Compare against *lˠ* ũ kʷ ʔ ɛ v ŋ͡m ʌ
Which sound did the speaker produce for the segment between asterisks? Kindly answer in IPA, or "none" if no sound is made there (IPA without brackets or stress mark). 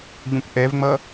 ʎ